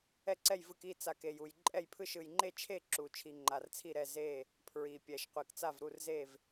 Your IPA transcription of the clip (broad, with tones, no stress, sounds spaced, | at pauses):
ɛ˥˨ ǀ ɛ˥˨ j v ɯ˥˨ k i˥˨ t͡s a˨ k e˨ j u˨ j ǃʼ ɛ˥˨ j pʰ ɯ˥˨ ʃ ɯ˨ j ŋ͡ǃ e˥˨ t͡ʃʰ e˥˨ ǁ u˨ t͡ʃʰ i˨ ŋ͡ǃ a˨ r t͡sʰ i˥˨ ɾ ɛ˥˨ z e˥˨ | pʰ ɹ i˨ pʲ ɛ˨ ʃ qʷ e˨ k t͡s a˥˨ v ɾ u˥˨ r z e˥˨ v